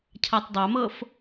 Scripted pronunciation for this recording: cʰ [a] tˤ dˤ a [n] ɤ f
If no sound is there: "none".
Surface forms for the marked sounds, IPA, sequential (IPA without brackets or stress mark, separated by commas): a, m